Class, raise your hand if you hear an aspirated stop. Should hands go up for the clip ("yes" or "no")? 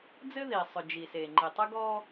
no